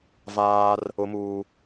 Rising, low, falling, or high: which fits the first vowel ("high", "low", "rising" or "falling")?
high